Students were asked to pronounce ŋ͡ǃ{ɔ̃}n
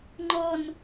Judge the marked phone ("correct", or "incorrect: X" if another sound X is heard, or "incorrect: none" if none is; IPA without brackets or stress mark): incorrect: ɔ